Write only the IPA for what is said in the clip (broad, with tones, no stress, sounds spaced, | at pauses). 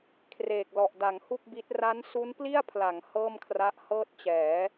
kʰ r eː˨˩ k̚ l ɔ˨˩ ʔ d a˩˦ ŋ h u˥˩ k̚ b i˦˥ t̚ r a˦˥ n s u˦˥ n p l i˥˩ a̯ pʰ l a˩˦ ŋ h ɤː˥˩ m kʰ r a˦˥ ʔ h ɤː˥˩ t̚ t͡ɕ ɛː˩˦